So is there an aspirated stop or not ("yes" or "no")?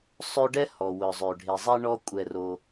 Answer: no